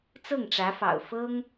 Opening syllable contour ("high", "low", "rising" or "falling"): falling